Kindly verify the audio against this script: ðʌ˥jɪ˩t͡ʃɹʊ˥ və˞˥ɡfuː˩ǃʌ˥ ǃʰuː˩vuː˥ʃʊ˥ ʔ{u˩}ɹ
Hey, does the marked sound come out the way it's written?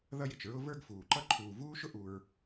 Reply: yes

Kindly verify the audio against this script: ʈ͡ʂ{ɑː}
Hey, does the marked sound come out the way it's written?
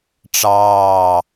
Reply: yes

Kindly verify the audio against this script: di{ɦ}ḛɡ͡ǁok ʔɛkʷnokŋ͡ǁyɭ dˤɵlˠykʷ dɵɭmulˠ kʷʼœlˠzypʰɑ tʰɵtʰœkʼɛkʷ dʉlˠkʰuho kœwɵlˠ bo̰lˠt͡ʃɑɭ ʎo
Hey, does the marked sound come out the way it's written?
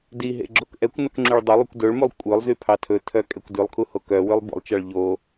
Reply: yes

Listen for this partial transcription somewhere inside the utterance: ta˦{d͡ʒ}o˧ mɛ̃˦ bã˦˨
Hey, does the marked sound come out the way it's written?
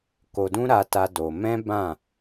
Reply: no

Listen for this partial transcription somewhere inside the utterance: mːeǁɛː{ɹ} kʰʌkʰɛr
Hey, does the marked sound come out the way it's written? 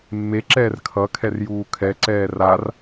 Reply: no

